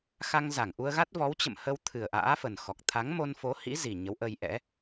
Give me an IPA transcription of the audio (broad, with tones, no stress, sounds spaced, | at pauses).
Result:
x a˧ ŋ z a˧˩ ŋ ʔ u˧ ə̯ ɣ a˦˥ t̚ v ɔ˨˦ w t͡ɕ ə̰˧˨ m h ə˧ w t̪ʰ ɨ˨˩ ə̯ ʔ a̰ː˧˥ f ə˨˩ n x ɔ˨˩ k̚ t̪ʰ a˨˦ ŋ m o˧ n f o˨˦ h ḭ˧˥ z i˨˩ ɲ ə˨˦ w ʔ ə˧ j ʔ ɛ̰˧˥